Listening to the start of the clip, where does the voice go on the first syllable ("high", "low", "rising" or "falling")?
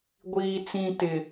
high